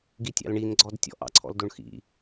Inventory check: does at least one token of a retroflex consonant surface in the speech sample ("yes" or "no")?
yes